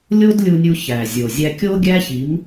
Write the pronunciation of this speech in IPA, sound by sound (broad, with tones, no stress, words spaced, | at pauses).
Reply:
lʲo˦dlʲu˧nʲu˧ çæ˨zʲo˨ zʲæ˧kʲo˦ɡʲæ˦çi˨˦m